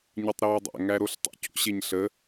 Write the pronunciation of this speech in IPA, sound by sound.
ɲ ɯ tˤ ɾ eː dˤ æ̰ ŋ æ ɾ o ɬ tˤ ə̰ c o̰ ɕ e ɲ ɬ ə

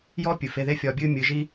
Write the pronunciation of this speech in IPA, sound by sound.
j ɔː˦ pʲ ɨ˨ f e˧ ð e˦ fʲ ɒː˧ bʲ ɨː˦ mʲ ɨ˨˦ ʒ i˦

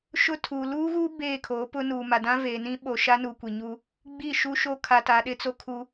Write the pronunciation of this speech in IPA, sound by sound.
ʃ ʊ˦ tʰ uː˨ l uː˦ ɣ u˦ b eː˦˨ kʰ o˨˦ p ʊ˦ n uː˨ m a˨ d ã˦ v eː˨ n ĩ˦ ɓ o˨ ʃ a˦ n u˨ kʷ i˨ ɲ uː˦ | ɡ͡b i˦˨ ʃ u˦ ʃ o˦ kʰ a˨ t a˨ ɗ ɪ˦ t͡s o˦ kʰ u˦

